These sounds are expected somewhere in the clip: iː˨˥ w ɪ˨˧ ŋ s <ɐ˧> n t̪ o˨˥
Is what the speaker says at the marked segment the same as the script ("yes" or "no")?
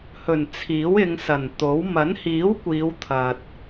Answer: no